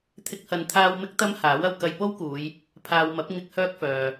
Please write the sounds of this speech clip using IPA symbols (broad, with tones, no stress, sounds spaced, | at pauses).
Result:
t̪ʰ ɪ˥ k̚ h ɐ˧ n t̪ʰ aː˥ w m ɪ˥ k̚ t̪ ɐ˥ m h aː˨˥ w ɐ˨ w k ɐ˧ j p o˥ w k uː˨˧ j | pʰ aː˨ w m ɐ˨˥ p̚ ŋ ɪ˧ k̚ h œː˥ k̚ f œː˨